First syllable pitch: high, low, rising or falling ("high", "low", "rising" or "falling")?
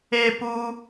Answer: high